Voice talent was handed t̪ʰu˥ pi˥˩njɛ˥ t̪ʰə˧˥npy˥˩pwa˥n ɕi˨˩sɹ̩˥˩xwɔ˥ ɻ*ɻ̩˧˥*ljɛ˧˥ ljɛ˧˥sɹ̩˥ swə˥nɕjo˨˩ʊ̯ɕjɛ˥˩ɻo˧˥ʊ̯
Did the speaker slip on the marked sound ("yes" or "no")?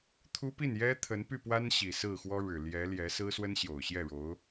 yes